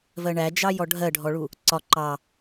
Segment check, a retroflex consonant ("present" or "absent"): present